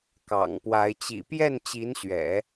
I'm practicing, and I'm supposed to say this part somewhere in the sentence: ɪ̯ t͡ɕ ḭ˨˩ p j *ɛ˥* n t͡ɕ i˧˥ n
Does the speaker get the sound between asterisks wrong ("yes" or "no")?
yes